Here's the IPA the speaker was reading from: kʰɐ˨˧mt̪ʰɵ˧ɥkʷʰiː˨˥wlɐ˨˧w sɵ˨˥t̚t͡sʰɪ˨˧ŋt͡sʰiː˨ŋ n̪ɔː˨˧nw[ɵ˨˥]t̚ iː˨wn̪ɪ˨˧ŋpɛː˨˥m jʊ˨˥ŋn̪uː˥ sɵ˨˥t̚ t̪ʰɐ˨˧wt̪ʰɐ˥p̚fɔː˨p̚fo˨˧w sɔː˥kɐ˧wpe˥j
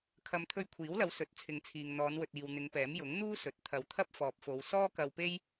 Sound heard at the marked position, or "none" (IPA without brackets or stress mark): ɵ˨